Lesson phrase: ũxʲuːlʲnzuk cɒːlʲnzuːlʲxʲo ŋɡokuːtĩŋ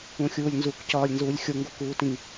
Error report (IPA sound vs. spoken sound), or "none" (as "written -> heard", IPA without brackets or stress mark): none